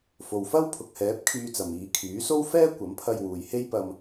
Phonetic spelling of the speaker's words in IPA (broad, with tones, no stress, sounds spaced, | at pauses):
f o˨ w f ɐ˥ w pʰ ʊ˨ k̚ h ɛː˨˥ p̚ kʰ yː˧ t͡s ɐ˨ m iː˨˧ kʰ yː˨˥ s o˥ w f ɛː˥ kʷ ɐ˨˥ m pʰ ɐ˧ j w uː˨ j h e˥ j p ɐ˧ m